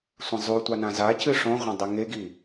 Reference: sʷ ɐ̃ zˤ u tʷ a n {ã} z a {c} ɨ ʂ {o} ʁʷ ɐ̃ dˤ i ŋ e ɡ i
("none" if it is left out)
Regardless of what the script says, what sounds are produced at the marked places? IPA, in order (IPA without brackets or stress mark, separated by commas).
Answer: ã, c, õ